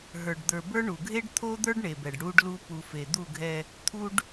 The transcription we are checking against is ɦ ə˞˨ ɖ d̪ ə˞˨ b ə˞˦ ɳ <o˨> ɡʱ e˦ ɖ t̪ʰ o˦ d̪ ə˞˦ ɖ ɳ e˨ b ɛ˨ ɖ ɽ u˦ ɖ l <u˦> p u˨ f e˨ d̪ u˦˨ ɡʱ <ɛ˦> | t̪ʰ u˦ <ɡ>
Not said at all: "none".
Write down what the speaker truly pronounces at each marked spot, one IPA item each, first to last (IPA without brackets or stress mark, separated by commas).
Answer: u˨, u˦, ɛ˦, ɖ